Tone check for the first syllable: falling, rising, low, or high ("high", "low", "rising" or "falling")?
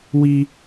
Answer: high